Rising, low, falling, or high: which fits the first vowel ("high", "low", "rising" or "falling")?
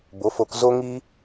rising